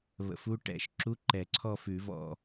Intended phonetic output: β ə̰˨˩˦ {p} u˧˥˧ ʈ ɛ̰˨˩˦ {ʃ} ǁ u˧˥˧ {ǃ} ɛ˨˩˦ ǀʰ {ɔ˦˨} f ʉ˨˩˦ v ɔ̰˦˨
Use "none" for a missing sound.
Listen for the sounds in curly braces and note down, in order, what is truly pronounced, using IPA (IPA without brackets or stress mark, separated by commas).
f, ʃ, ǃ, ɔ˦˨